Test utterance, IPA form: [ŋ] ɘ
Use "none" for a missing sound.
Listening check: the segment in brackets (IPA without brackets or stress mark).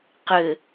q